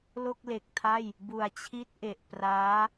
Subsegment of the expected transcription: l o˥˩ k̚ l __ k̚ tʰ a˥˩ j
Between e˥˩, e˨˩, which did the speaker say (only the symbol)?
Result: e˨˩